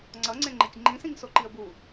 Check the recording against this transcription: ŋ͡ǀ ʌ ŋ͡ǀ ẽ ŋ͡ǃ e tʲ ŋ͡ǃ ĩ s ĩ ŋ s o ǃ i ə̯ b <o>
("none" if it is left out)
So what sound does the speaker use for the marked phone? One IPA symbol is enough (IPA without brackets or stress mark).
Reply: u